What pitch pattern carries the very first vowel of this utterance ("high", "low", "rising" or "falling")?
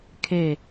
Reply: falling